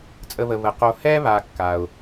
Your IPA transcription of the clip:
t͡sʼ ə˧ β ə˨ β ə˨ q o˧ h ɛ˦ β a˨ kː a˨ ʊ̯

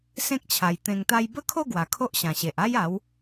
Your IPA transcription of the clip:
s ẽ˦ k̚ t͡ɕʰ a˨˩ j t̪ ẽ˨˩ ŋ t̪ a˧ j b ə˦ kʰ o˥˧ ɡ w a˨˩ kʰ o˦ ʔ ɕ ã˨˩ ɕ e˨ ʔ a˦ j a˨˦ w

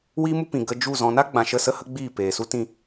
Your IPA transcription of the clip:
w iː˦ m u˦ p ĩ˨ ɡ ə˧ d͡ʒ u˦˨ z ɔ̃˧ n a˦ ɡ͡b ã˨ ʃ ə˦˨ s ə˦ h ə˦ ɡ͡b iː˦˨ p eː˨ s u˦ t ĩ˧

